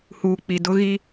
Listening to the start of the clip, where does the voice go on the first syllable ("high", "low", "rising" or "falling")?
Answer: low